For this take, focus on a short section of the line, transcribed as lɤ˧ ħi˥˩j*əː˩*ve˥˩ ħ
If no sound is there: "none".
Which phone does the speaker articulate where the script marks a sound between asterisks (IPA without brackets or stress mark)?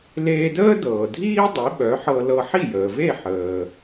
əː˩